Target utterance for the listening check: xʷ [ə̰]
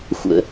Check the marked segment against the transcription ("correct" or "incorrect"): correct